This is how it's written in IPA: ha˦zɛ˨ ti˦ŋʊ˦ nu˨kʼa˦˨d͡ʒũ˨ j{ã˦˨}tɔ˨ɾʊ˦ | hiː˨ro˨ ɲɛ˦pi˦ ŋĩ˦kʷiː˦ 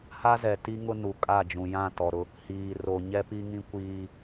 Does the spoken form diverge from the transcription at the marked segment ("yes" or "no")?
no